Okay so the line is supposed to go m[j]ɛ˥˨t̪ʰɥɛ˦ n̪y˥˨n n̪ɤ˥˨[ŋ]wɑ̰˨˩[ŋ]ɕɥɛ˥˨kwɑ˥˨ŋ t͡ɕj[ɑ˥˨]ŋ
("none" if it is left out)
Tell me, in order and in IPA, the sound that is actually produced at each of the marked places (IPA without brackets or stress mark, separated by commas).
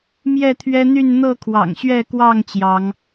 j, kʰ, ŋ, ɑ˨˦